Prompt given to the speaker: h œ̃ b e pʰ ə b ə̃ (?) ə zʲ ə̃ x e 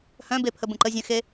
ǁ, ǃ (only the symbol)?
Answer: ǃ